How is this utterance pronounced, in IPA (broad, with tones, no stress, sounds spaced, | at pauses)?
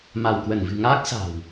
m a˧˩ w k w ə˧˩ n v ɨ̤˨˩ ŋ aː˦˥ k̚ s a̤˨˩ w